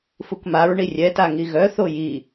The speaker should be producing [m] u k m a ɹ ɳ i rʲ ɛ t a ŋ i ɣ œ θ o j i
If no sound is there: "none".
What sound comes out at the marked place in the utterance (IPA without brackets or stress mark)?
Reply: f